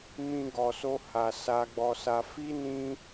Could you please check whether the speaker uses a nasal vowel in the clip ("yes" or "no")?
yes